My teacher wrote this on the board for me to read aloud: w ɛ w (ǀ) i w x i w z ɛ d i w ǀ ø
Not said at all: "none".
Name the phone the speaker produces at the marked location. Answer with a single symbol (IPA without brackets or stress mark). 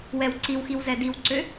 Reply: ǀ